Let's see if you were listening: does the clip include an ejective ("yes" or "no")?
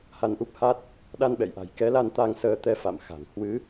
no